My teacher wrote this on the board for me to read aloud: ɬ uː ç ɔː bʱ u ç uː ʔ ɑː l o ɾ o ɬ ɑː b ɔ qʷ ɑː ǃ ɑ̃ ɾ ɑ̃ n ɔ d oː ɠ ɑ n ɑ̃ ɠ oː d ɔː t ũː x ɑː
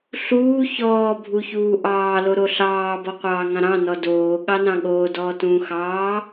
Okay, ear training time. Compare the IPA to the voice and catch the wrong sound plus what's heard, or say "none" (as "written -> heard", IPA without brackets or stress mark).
ǃ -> ŋ